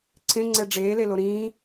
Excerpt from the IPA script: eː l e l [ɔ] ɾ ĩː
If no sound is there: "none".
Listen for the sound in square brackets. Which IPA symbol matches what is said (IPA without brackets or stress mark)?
o